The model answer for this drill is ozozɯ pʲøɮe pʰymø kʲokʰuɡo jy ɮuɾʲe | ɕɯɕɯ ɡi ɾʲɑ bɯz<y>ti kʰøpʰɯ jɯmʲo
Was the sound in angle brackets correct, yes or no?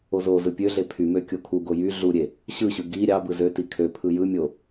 no